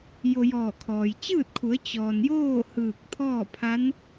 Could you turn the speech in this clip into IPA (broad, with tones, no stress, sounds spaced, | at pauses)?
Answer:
j o˧ j ɔː˧˩ kʰ ɔː˩ j t͡ɕ ɯː˥˨ t̚ kʰ u˩˧ ə̯ t͡ɕ ɔː˩ n j oː˥˨ h ɯː˧˩ k̚ t̪ʰ ɔː˥˨ pʰ a˧˥ n